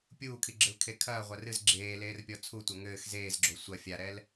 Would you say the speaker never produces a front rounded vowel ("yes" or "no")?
yes